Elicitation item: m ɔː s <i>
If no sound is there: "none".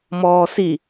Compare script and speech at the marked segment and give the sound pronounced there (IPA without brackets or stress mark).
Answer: i